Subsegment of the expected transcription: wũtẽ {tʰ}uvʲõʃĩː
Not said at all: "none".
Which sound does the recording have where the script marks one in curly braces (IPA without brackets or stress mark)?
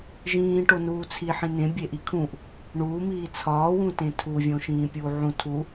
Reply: tʰ